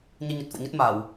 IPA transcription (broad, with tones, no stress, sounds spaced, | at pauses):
ɲ ɨ˧ ɲ ə˨˩ t̚ f o̰˧˨ ɲ ə˦˥ t̚ m a˧˩˨ w